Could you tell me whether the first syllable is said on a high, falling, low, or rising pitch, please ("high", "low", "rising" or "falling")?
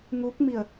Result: rising